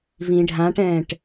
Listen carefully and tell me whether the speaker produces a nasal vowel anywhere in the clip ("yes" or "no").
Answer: yes